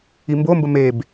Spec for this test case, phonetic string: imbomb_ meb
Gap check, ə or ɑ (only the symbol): ə